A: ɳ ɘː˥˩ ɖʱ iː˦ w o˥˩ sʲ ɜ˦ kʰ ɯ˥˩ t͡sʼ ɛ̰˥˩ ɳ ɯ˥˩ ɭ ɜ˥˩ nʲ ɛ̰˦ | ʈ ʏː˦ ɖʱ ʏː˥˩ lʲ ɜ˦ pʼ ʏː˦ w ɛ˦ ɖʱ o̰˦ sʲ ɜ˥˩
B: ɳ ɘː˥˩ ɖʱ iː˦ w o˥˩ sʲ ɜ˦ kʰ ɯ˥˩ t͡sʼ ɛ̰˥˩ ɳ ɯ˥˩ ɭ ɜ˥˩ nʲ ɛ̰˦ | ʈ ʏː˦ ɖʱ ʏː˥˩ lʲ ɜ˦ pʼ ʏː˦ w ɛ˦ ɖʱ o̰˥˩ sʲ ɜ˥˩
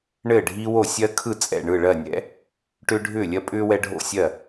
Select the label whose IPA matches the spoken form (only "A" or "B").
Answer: B